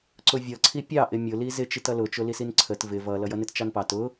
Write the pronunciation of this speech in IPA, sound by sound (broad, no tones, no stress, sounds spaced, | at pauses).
ǀ ʊ vʲ ʌ ǀʰ i pʲ ɑ ʔ ɪ mʲ ʊ l i z ɪ t͡ʃ i t ʌ l ʊ t͡ʃ ʊ l i s i n ǀʰ ə t v ɪ v ʌ l ʌ j ʌ n ɪ t t͡ʃ ɑ n p ɑ t ʊ